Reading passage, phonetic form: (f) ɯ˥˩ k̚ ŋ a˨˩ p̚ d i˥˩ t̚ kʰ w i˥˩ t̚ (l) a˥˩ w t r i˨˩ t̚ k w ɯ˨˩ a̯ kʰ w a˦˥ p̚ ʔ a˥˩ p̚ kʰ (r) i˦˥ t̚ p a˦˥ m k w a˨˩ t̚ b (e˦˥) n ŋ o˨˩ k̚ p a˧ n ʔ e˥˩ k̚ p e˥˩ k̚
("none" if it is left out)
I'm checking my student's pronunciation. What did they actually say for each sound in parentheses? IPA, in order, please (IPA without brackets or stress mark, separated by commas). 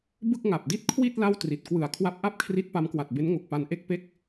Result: b, l, r, e˦˥